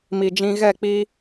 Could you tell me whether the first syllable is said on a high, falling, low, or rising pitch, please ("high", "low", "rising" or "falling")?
low